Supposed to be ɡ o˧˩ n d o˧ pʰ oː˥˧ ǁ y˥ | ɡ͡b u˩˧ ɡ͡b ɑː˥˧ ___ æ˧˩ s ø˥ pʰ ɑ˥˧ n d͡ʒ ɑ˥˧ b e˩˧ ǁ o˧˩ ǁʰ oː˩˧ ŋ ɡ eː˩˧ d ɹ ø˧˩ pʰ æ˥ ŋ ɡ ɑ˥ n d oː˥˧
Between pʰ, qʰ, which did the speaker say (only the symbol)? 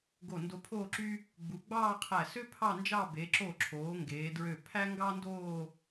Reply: qʰ